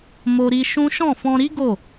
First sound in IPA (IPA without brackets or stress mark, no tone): m